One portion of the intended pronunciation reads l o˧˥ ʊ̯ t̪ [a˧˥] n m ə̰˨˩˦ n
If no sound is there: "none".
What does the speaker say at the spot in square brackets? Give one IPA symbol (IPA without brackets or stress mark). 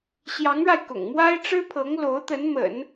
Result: ə˧˥